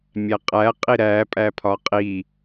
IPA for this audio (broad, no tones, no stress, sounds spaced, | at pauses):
mʲ æ qʼ æ qʼ i ɾ æ pʼ æ pʰ ɒ qʼ i